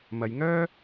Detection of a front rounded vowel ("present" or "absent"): present